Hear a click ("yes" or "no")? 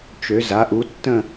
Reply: no